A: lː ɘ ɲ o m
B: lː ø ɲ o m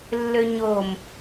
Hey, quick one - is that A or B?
B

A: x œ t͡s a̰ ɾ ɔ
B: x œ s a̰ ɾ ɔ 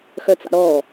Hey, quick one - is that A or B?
A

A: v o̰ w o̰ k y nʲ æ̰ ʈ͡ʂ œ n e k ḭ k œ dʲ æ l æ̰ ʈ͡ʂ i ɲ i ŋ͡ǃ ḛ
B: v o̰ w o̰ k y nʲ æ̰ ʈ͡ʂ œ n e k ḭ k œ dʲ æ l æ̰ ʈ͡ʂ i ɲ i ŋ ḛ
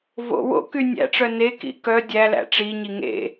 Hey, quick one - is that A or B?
B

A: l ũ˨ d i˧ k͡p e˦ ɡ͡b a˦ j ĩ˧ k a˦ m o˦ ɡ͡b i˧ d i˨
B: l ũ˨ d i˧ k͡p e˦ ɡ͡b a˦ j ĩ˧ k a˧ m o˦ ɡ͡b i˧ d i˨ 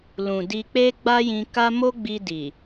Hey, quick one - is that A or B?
A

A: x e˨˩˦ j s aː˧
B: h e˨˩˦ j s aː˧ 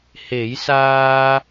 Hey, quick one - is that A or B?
B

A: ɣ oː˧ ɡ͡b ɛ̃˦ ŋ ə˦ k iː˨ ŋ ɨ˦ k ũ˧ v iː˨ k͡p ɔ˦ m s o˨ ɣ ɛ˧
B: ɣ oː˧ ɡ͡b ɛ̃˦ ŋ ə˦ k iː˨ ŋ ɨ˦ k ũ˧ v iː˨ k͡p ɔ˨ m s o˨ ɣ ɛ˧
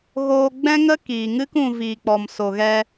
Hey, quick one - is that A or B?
B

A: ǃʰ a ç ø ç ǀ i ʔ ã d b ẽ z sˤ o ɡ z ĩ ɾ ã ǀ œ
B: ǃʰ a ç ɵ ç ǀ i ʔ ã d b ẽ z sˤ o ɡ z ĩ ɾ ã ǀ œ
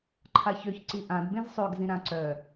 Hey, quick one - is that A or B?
A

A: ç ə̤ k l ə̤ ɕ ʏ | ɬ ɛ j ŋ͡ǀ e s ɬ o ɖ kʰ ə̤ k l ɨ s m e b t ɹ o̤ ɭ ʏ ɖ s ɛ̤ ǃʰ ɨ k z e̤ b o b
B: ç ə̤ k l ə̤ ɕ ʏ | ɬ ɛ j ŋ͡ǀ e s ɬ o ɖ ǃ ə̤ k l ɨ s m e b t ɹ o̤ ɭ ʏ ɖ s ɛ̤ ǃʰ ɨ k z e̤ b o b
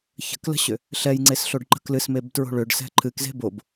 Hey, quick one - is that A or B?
B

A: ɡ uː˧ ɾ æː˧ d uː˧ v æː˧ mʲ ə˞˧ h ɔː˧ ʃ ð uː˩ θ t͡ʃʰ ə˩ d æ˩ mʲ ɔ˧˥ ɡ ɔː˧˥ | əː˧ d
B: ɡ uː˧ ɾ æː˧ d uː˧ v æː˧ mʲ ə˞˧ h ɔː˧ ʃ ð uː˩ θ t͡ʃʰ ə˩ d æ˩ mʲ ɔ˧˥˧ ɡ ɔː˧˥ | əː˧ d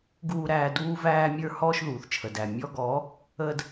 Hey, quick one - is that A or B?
B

